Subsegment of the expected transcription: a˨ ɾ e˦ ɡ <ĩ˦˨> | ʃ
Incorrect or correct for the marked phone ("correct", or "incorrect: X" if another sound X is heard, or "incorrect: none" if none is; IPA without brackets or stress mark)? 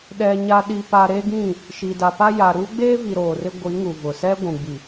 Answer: correct